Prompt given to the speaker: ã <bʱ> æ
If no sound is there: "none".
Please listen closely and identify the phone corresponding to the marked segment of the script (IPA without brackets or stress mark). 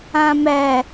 m